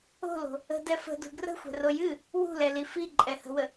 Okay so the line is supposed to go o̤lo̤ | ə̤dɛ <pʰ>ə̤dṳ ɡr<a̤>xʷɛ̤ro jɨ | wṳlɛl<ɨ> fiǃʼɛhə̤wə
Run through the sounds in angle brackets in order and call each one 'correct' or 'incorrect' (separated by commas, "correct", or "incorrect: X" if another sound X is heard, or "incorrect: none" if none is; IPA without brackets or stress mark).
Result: incorrect: f, incorrect: ə̤, incorrect: i